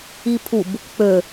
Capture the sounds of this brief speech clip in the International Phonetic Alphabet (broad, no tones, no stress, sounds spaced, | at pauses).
i pʰ u b | k͡p ø